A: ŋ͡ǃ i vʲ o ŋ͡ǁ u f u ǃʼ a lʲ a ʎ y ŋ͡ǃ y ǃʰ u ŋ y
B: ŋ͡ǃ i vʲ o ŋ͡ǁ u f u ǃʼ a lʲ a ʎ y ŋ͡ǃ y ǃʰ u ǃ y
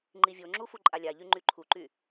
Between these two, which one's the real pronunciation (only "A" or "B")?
B